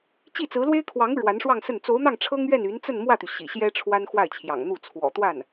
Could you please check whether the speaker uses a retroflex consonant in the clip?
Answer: yes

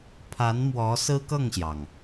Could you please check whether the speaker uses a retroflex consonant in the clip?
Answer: no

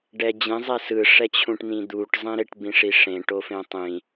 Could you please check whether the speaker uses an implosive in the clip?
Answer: no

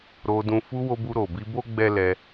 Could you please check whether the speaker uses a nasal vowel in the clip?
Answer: yes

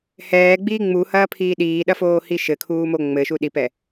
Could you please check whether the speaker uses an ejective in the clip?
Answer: no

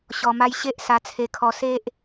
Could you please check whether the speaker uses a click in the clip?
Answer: no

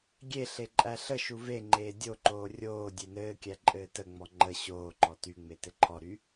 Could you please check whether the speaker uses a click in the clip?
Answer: yes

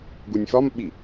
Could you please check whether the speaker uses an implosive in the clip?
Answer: yes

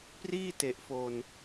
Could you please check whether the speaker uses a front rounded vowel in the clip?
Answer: no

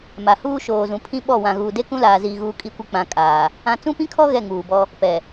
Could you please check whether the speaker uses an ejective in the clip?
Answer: yes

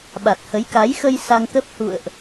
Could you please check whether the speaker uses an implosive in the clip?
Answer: yes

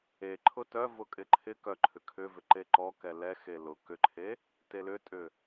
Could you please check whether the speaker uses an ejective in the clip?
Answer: yes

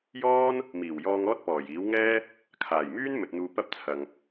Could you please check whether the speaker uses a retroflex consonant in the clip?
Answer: no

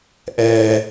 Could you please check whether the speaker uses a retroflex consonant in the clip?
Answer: no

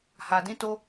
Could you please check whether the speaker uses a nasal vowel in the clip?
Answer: yes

